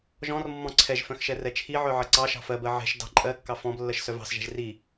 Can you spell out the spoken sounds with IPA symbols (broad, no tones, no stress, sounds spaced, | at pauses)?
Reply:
ʒ ɔ̃ r mː ɔ̃ ǀʰ ɛ ʒ f œ̃ x ʃ ɛ r ɛ t͡ʃʰ i ʕ œ ʕ ɜ ǀ ɑ ʃ ɑ̤ f ɜ b ɜ ʕ ɛ̤ ʃ d ɑ̤ ǃʼ ɜ kː ɑ f ɔ̃ b lː ɜ ʃ s œ v ɑ̤ s ʒ ɛ̤ ʒ r i